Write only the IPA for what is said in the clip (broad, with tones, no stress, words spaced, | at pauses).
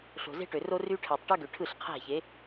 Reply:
ɬo̤˨ze̤˦ʈø˨ro˦ ry˦ ʈʰæ˨tˤʈɯ˦ɡø˨ ʈʰɯ˦˨ɬqʰæ̤˦˨ çe˨˦